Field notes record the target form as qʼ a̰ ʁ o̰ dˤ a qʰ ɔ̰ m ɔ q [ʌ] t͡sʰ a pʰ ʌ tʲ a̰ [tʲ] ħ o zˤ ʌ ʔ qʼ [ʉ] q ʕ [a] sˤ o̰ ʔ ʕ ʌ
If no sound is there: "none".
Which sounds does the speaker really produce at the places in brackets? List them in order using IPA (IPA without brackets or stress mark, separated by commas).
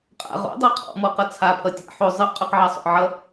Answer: ʌ, none, ʉ, a